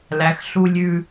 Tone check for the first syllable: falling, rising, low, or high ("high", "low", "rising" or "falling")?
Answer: low